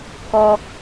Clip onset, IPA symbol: k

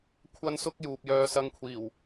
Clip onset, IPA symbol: kʷʰ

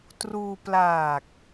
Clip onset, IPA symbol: t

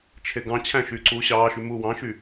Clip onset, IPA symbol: t͡ʃʰ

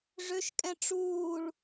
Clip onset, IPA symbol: ʐ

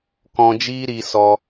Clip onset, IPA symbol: k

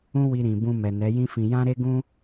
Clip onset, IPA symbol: ũ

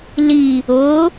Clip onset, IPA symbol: l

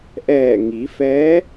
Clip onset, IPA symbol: ʔ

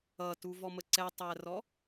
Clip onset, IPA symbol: ʌ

